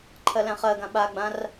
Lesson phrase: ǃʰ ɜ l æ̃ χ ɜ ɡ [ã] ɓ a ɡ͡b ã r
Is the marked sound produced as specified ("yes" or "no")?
yes